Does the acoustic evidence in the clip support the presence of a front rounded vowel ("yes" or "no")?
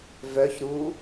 yes